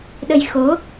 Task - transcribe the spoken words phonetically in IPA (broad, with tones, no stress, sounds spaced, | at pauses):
ɗ ə˧ j x o˨˦